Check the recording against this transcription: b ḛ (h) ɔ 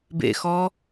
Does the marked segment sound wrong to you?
yes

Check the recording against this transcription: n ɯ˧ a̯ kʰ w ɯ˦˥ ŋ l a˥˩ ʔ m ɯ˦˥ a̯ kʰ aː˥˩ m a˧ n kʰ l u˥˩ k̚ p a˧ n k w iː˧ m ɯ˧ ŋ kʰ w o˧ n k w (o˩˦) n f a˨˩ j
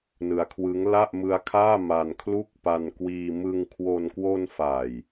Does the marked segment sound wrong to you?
yes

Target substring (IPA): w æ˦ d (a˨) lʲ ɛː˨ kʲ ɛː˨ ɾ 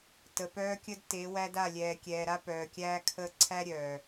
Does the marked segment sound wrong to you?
yes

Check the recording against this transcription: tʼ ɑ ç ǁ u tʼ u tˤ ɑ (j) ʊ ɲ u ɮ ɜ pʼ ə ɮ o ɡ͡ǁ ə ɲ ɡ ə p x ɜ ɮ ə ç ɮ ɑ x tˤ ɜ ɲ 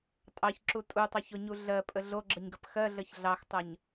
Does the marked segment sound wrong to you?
yes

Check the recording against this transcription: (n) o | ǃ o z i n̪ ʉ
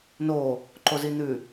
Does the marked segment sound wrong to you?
no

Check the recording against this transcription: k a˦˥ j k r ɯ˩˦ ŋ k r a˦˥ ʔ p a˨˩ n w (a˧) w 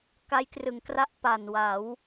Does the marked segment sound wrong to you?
yes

